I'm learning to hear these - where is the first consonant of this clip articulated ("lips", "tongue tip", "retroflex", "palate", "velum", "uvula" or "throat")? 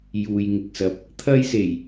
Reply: palate